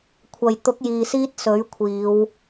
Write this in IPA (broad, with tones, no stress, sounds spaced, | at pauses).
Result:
kʷʰ ɐ˨ j t̪ ʊ˨˥ k̚ j iː˨ s iː˧ t̚ s ɵ˨˥ ɥ kʷʰ iː˨˧ w